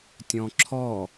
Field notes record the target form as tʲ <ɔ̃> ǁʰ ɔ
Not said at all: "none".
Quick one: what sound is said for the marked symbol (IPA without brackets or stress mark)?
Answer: ɔ̃